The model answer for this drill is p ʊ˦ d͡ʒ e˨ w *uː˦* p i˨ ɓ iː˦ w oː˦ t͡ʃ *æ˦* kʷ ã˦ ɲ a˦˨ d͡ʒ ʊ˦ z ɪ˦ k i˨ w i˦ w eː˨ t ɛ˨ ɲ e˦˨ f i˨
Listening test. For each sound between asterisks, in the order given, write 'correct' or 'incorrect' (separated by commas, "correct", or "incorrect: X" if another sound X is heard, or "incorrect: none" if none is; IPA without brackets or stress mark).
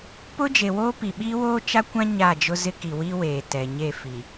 incorrect: oː˦, incorrect: a˦